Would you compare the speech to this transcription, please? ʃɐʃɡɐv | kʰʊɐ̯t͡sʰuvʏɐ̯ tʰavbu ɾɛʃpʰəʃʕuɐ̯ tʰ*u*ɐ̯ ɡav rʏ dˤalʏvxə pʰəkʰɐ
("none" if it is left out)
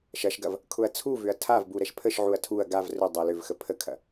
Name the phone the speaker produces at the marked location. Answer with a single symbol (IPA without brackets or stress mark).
u